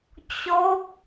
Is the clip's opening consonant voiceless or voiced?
voiceless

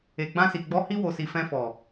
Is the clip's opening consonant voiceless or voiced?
voiced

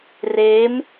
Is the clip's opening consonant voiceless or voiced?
voiced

